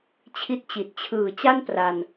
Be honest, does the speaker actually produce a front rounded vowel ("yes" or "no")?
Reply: no